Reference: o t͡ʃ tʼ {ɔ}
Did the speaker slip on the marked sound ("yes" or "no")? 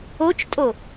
yes